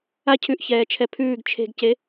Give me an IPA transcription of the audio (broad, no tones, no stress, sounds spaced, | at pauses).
a cʰ ʉ ʔ ç ɛː t͡ʃʰ ɛ pʰ ʉː ɡ t͡ʃʰ e̤ ɡ c e